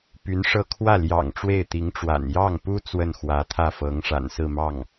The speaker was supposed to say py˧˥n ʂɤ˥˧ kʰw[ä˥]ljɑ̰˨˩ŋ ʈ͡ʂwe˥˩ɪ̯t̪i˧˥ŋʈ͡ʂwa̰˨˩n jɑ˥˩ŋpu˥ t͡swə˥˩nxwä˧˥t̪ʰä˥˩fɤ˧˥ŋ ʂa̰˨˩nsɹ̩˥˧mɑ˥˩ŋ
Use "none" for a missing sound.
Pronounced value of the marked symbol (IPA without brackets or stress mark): ä˥˩